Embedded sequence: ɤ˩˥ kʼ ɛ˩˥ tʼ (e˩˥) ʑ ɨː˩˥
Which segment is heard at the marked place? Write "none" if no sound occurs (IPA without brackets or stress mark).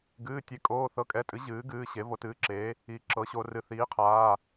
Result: ɨ˩˥